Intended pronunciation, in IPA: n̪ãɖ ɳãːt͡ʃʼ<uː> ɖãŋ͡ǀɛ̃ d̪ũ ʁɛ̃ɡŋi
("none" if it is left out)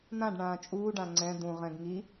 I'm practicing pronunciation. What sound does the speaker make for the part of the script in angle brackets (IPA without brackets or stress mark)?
uː